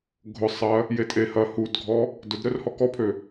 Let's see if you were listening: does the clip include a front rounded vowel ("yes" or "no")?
yes